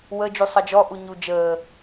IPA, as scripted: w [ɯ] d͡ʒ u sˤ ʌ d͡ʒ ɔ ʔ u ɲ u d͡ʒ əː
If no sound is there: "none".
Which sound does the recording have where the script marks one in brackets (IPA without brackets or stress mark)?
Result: ə